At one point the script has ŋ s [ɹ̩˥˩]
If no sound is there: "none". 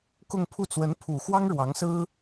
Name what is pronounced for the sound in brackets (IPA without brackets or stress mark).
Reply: ɹ̩˥